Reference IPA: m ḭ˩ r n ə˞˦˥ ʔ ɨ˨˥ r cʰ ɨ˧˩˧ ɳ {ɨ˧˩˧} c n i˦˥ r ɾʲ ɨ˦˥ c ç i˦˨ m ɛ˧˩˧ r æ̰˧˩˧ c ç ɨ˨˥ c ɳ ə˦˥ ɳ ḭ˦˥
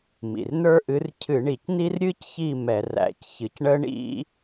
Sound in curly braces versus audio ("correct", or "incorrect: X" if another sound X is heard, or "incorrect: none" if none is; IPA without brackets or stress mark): incorrect: i˧˩˧